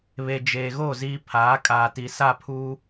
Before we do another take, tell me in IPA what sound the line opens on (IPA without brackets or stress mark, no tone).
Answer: β